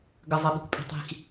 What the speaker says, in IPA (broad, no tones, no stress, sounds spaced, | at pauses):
ɡ ə zˤ ə ɓ i̤ kʷ pʼ i̤ tˤ i̤ x